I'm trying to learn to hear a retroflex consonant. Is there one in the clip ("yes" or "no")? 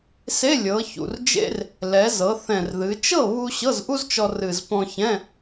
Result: no